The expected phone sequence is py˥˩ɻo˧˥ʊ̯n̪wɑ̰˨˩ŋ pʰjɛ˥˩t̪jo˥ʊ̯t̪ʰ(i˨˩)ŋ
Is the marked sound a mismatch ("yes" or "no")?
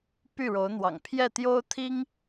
yes